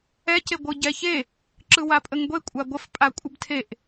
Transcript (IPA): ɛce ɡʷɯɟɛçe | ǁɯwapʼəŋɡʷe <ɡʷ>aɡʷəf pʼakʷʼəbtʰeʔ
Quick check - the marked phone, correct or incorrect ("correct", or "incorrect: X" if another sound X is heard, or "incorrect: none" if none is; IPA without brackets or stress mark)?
incorrect: kʷʼ